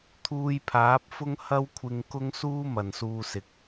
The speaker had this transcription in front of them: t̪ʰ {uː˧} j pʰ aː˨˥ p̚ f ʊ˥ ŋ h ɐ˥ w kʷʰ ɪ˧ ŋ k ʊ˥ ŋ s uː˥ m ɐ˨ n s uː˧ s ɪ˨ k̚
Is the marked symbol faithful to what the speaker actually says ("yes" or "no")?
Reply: yes